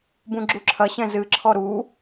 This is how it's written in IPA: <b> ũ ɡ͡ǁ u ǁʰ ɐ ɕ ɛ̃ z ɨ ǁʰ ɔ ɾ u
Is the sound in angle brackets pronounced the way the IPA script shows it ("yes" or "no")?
yes